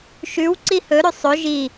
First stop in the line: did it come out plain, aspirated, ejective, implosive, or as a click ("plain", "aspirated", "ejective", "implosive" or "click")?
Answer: click